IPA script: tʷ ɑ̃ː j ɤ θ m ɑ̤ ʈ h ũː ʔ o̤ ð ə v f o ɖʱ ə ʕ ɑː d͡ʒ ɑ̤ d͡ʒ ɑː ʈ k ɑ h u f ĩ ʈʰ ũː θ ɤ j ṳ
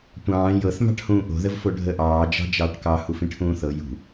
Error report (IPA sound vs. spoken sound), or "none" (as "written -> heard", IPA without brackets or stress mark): ʕ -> ʔ